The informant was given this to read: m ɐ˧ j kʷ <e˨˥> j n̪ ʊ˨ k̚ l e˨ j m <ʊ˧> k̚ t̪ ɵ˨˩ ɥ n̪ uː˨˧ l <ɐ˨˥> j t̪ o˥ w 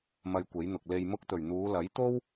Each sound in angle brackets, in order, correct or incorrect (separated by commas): correct, correct, correct